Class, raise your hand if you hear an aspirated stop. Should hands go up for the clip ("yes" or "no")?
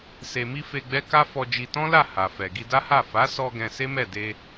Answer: no